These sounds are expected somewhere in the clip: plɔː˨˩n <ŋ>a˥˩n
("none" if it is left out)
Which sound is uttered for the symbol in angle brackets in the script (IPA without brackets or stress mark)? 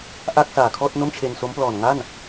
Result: ŋ